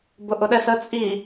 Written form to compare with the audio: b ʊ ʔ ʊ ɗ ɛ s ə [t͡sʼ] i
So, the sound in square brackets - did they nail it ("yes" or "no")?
yes